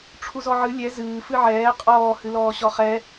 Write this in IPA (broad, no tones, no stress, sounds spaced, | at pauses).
ʈ͡ʂʰ u z ɔ ʕ ɨ lʲ ɛ z ɨː f ɨ ʕ ɛː qʼ ɔː h ɨ l ɔː ɕ ɔ χ ɛ